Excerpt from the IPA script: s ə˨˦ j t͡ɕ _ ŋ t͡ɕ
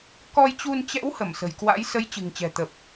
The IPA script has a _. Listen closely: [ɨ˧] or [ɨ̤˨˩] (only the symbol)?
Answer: ɨ̤˨˩